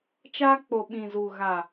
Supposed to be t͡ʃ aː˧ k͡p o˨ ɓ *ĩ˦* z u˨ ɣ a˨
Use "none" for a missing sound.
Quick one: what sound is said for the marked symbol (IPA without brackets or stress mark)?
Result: ĩ˨